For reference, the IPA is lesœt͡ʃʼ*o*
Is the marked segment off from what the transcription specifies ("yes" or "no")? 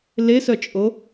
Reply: no